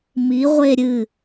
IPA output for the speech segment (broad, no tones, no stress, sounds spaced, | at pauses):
m i ʁʷ e ɾʲ ɨ